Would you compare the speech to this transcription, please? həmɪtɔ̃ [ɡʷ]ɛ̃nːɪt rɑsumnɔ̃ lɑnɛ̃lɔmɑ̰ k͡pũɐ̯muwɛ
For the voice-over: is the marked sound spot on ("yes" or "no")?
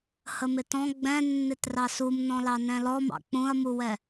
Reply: no